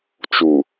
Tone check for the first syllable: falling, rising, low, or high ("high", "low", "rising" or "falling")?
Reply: low